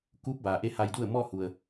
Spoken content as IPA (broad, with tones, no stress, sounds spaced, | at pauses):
k uː˧˥ p̚ b aː˩ ʔ e˧˥ h a˧ j d u˥˨ ə̯ m ɔː˥˨ h u˩ ə̯